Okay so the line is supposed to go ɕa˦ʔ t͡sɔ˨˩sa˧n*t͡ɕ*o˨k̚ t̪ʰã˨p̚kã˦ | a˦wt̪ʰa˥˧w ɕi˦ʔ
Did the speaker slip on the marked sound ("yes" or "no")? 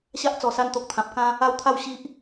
yes